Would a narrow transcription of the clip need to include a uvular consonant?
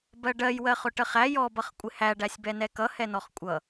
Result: yes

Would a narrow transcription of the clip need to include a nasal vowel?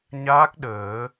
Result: no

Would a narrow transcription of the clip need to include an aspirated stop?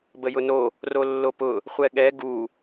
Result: no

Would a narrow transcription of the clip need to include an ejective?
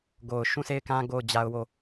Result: no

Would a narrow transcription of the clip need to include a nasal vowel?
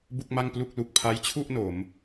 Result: no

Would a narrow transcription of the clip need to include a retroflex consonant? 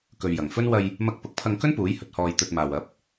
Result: no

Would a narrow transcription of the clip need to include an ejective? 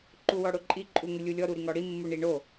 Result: yes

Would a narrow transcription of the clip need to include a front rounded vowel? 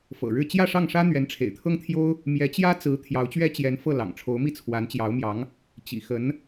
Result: no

